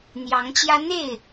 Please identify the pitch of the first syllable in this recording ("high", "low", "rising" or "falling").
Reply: rising